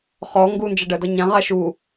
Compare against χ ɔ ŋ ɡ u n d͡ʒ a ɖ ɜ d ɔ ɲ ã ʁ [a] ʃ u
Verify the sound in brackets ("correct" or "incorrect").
correct